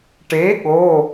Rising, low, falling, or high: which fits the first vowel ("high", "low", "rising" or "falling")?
rising